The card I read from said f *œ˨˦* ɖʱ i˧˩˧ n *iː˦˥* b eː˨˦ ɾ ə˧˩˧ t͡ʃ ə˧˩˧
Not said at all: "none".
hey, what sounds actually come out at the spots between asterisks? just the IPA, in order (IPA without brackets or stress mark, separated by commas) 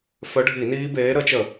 œ˨˦, iː˦˥